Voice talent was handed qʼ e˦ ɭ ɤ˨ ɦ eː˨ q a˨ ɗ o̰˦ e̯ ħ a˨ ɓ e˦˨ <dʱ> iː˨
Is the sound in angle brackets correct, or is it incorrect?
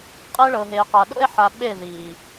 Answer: incorrect